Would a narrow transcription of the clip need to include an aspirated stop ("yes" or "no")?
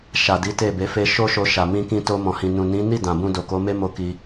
no